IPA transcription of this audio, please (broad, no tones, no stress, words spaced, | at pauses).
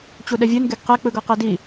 t͡ɕuɗɛvʲɯn ɡeɡqɛk͡pɯ ɡɤqɛdi